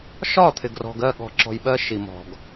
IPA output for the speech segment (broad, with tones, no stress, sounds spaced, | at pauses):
ʃ ɒ˦˨ t̪ʰ ɪ˨ ɡ r ɔ̤˨ ɡ ɜ˦˨ ɠ ɔ̤˨ ǁ ɔ̤˨ j ɓ ɜ˧ ʃ i˨ m ɔ̤˨ ɡ